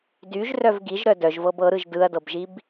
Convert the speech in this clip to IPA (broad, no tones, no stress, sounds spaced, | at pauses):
d y ʒ r œ v ɡ i ʒ ɾ œ d œ ʒ v ɤ b ɤ ɾ ɯ ʒ d ɯ ɐ̯ d ɤ b ʒ i b